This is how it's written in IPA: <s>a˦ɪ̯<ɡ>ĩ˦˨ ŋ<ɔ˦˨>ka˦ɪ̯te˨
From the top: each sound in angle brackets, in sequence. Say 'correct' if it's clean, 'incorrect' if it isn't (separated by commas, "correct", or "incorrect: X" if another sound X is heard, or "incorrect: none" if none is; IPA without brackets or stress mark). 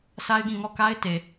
correct, correct, correct